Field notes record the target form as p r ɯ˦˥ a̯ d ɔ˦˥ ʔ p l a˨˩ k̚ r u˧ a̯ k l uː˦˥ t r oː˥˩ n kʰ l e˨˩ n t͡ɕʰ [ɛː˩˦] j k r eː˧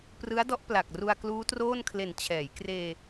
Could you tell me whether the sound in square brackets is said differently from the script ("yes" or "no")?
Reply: no